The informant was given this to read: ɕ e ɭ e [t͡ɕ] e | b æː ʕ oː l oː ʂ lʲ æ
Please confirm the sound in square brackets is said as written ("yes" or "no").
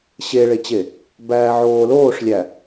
yes